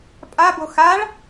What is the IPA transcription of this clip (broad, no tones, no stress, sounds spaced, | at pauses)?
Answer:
pʼ a b o x a ɭ